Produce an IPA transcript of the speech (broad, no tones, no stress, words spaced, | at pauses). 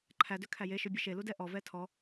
ǃʰædøkʰæ jeʃøbʲœ ʃeludɛ ʔɔvɛ tʰɔ